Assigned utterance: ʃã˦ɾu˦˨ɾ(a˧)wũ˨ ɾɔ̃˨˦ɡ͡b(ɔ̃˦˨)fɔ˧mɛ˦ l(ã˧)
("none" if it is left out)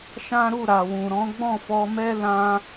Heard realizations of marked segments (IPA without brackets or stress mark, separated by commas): a˨, ɔ̃˦˨, ã˧